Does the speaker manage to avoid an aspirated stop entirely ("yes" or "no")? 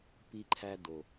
no